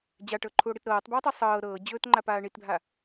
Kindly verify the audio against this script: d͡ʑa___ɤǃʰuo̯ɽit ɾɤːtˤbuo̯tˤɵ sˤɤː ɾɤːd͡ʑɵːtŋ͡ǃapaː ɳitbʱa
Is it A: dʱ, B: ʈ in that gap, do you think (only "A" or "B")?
B